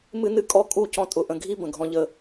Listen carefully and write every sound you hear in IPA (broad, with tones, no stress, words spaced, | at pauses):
mɨ˦nɨ˦˨ kʼɔ˦kʼu˦˨ cɔ̃˦ tʼʊ˨ʔə̃˨ɡʱi˦ bə̃˨ɡʱɔ̃˦ʎə˦